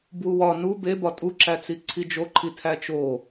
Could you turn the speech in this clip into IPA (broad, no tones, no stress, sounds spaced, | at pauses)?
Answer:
b w u w ɒ n u b e b ɒ tʼ u ǁ æ t͡s i ǀʰ i d͡ʒ o ǃʰ i tʰ æ t͡ʃ o